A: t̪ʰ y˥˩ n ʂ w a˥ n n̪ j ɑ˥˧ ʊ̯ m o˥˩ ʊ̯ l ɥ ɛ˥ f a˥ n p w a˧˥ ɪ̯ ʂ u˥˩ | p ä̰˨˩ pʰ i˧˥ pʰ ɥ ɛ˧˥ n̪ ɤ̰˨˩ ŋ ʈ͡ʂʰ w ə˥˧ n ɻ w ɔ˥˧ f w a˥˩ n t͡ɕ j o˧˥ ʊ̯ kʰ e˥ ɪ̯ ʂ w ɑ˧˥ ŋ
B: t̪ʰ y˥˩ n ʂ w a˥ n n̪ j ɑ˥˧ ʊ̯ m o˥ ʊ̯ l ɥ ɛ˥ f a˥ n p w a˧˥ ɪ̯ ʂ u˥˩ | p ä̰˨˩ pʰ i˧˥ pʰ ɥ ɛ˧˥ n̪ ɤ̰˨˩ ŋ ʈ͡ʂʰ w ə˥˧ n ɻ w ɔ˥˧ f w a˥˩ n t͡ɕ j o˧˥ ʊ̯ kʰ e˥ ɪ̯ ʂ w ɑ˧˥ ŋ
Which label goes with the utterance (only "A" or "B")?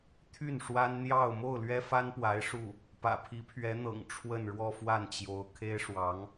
A